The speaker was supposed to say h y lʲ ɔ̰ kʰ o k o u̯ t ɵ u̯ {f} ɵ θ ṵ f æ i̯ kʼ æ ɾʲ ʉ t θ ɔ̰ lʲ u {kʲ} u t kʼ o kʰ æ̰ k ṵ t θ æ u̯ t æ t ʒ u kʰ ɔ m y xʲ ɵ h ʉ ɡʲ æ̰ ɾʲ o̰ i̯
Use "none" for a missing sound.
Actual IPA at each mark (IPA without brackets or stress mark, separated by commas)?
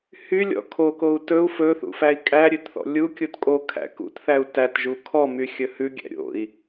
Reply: f, kʲ